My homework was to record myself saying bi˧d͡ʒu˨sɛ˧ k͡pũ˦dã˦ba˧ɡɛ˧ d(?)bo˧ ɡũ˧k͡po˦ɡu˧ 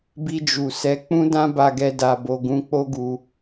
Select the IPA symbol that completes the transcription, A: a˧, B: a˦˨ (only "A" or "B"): A